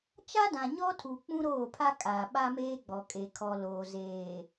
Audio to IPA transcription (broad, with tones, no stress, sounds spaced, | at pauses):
t͡ʃ a˦ d ã˨ ɲ ɔ˦ tʰ u˨ k͡p ũ˦ ɾ oː˦˨ pʰ a˦ kʼ aː˨ ɓ a˦ m eː˦ ɡ͡b ɔ˨ kʼ e˨ kʰ ɔ˨ l oː˨ z eː˨